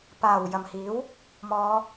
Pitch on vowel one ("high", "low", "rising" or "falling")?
low